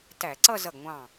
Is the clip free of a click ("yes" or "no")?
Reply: no